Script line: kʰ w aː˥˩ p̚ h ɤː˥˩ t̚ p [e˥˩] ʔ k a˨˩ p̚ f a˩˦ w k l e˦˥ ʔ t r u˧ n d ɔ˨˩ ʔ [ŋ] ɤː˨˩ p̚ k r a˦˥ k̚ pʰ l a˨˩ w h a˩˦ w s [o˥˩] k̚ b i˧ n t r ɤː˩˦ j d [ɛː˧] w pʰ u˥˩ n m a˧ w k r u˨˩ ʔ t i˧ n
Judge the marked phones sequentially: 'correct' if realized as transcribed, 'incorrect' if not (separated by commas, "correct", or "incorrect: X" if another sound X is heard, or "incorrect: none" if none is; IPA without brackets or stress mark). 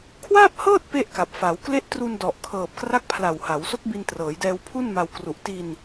correct, incorrect: kʰ, incorrect: o˦˥, correct